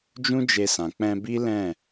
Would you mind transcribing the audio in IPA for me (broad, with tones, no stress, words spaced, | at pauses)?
d͡ʒũ˦d͡ʒe˧sã˨ k͡pɛ̃˧bi˦ lɛ̃˦˨